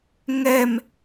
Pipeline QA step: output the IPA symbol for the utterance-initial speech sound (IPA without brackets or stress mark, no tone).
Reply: ŋ